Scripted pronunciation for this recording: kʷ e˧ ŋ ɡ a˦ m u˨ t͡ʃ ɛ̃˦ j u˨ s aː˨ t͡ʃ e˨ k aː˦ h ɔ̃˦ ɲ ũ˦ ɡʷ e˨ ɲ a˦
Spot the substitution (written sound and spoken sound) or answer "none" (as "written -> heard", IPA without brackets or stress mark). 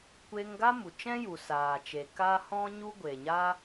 ũ˦ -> u˦